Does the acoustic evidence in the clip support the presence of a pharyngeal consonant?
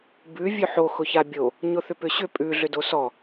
yes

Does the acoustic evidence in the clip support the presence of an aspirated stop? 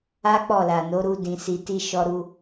no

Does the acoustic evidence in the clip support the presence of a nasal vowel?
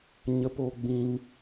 yes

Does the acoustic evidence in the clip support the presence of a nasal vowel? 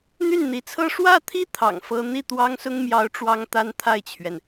no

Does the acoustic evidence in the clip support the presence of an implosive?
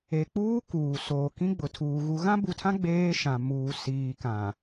no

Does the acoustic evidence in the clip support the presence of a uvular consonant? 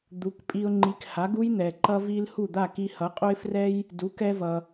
yes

